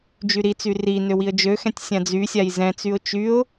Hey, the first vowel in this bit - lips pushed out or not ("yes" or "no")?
yes